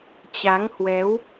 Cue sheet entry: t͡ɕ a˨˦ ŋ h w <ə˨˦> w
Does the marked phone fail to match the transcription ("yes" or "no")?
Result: yes